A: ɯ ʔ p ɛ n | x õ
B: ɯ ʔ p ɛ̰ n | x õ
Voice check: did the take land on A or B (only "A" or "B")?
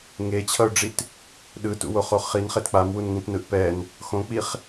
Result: A